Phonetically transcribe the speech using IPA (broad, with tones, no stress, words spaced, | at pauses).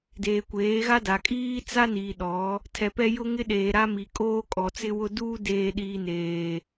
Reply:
deː˨kʷeː˨˦ɣa˦da˨ kʼiː˦t͡sa˦ niː˨ɗɔ˨˦ | tʰɛ˨pɛ˦ jʊ˦ŋɪ˦ɗeː˨ ɾa˦ mi˨kʼoː˦ kʼɔ˨t͡sɪ˦wʊ˦ duː˦deː˨ɗiː˨ neː˨